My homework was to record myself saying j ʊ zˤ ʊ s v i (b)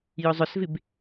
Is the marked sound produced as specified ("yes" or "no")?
yes